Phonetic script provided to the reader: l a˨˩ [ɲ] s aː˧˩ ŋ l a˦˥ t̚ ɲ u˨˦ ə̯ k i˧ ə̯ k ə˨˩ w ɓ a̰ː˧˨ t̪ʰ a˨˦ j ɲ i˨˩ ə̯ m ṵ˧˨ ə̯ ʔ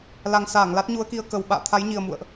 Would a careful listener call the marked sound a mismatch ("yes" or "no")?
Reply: yes